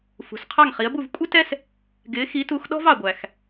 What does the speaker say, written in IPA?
f ṳ˩ s qʰ ɑ˥˩ ŋ χ i˩˥ ə̯ b u˥˩ v kʷʼ ɪ˥ t ɛ˥ s | ɡ ɪː˩˥ x i˩˥ t u˩˥ x ɗ ɔ̤˥ v ɑ˩ ɡʷ æ˩ x

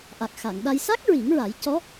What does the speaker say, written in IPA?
ʔ a˨˩ k̚ x a˨˩˨ ŋ ɗ a˧ j s a˦˥ k̚ ɹ i˨˩˦ ŋ ɹ a˨˩˦ j c ɔ˧˥

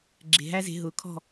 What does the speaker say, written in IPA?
ɡ͡ǁ e̤˨ ɦ æ˦ z e̤˧ ɦ ʊː˨ kʰ ɔ̤˦˨

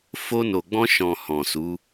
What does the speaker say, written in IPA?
f o˧ n o˨ ɡ͡b ɔ̃˧ ʃ ɔ̃˨ h ɔ̃˨ s u˨˦

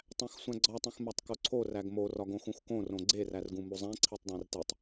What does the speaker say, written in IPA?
tˤ æ̃ x sʷ æ̃ ɡ͡ǀ ɒ tˤ ũ x m æ tˤ k o ǀʰ o r æ ɡ m o r ɒ ɡ õ x ũ x k õ r õ ɡ͡ǀ e r æ r ɡ ũ m u zˤ æ̃ ǀʰ i tˤ dˤ æ̃ r t e tˤ

